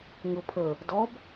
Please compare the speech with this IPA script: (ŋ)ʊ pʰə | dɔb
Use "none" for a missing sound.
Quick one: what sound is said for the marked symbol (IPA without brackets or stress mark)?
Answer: ŋ